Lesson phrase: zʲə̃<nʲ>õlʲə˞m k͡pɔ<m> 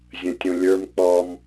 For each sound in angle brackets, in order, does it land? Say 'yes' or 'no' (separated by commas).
no, yes